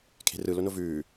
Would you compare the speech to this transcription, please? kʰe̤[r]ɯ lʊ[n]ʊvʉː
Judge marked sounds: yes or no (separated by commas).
yes, yes